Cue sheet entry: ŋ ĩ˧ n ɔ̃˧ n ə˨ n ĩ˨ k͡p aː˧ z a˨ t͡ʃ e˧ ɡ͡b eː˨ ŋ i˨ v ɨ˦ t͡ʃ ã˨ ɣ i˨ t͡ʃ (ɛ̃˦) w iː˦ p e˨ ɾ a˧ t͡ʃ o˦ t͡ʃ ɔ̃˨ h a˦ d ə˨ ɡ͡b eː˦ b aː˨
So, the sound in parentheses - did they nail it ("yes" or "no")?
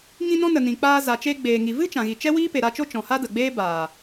no